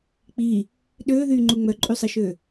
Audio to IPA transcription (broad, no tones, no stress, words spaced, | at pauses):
k͡pi | ɗøːðyːŋ͡ǃu ŋ͡mœǃʼysˤiʃø